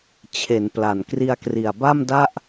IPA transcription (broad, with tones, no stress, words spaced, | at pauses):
t͡ɕʰe˩˦npla˨˩n kri˧a̯kri˨˩a̯ba˥˩mda˥˩ʔ